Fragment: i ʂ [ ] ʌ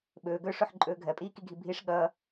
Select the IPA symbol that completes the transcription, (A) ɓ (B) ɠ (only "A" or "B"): B